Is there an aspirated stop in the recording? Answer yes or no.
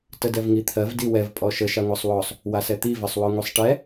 yes